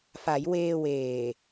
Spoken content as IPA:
fa˩˦jweː˧weː˨˩

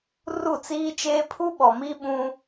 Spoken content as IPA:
ru˦˨t͡siː˦t͡ʃeː˦ pʰu˦ɓɔ˨ mi˦ɓũ˦

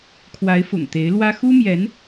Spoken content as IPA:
kʰwa˧˥ɪ̯fʊ̰˨˩ŋt̪e˧˥ɪ̯ lwä˥ xu˥mjɛ˧˥n

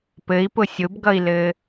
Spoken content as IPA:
pɘi̯pʊ sʲʊbɡʌi̯lɘ

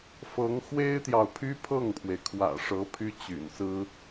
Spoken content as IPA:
fɤ˧˥ŋ xwe˥ɪ̯t̪jɑ˨ʊ̯pʰy˥ pʰɤ˥˩ŋpʰwe˩ɪ̯kʰwä̰˨˩ʂɤ˧˥ pʰy˥t͡ɕy̰˨˩nsɹ̩˥

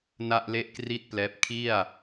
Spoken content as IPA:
na˥˩ʔle˥˩ʔkri˥˩t̚plɛː˦˥p̚ kʰi˥˩a̯

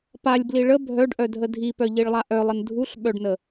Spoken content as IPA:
palʲbli ɭə bʱœɖʔœdʱə dʱipœʎiɭlˠa ʔœlˠən dʱuɬɓœɖnə

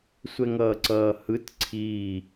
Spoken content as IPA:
sʷɛŋʌːǀʌːhɯt ǀʰiː

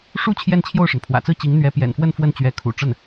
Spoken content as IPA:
ʂu˥ t͡ɕʰjɛ˥˧nt͡ɕʰjo˥˩ʊ̯ʂə˩n pʰwä̰˨˩t͡sɹ̩˥˩t͡ɕi˧˥ŋ n̪ɥɛ˧˥pjɛ̰˨˩nfwə˥˧n fwə˥˩nt͡ɕɥɛ˧˥kʰṵ˨˩ʈ͡ʂə˥˩n

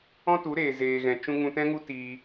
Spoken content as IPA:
ɔ̃˦tu˨˦ɾeː˨ zeː˨ɣɛ̃˨ t͡ʃũ˦ ŋũ˧tɛ̃˦ŋu˦ tiː˧

